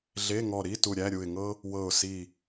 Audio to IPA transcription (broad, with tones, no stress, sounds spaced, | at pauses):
ɮ e˧˥˧ ŋ ɔ˧˩ ɾ i˧˥˧ t u˧˩ ɾʲ æ˧˥˧ ɾʲ u˧˩ ɪ̯ ŋ ɤ˥ | w ɤ˧˩ ʊ̯ s i˧˩